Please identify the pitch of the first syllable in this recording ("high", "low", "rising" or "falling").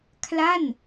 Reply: falling